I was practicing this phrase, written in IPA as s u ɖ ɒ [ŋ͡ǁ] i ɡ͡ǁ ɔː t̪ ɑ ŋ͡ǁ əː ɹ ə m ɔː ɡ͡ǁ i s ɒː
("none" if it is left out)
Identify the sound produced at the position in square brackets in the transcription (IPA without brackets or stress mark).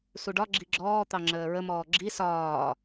ɡ͡ǁ